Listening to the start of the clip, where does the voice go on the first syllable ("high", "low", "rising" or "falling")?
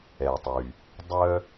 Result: low